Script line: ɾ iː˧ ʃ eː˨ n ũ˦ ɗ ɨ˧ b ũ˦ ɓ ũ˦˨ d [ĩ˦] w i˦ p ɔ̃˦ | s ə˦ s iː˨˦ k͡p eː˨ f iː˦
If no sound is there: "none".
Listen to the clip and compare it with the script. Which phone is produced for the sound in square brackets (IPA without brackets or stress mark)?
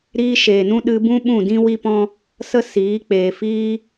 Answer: ĩ˦